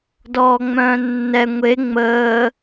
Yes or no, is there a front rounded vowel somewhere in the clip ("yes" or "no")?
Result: yes